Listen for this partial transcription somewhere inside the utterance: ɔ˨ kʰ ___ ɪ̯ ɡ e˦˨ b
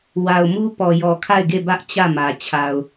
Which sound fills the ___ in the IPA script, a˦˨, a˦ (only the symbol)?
a˦˨